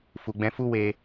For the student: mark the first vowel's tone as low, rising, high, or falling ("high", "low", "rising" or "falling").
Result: low